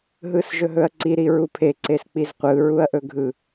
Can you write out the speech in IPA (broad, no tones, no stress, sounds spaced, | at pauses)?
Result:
ɦ ɯ s ʒ ɵ ɦ ɵ ɐ̯ ǀ i ɾ i ɹ u pʰ e ǀ e s k͡p i z qʷ ɯ ɹ u ɐ̯ ʔ ɵ ɡʱ ɯ